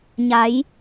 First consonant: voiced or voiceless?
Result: voiced